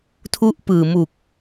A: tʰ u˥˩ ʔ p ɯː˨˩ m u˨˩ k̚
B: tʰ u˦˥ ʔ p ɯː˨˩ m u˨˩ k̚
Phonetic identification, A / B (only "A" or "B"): B